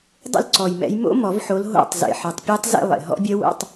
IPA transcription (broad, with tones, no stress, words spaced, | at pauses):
dˤṵ˦˨lǀɔ˨˩jmɛ̰˨˦j mo̰˦˥ mɔ˨˩˦vħo˨˦l ɦo̰˦˨tˤ zḛ˨˩ħɯ˨˩tˤpʲe˦˥tˤ zḛ˦˨lˠḛ˨˩ ɦɔ̰˦˥bʲɜ˦˥wo̰˧˥˧tˤ